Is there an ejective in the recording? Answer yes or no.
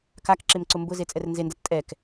yes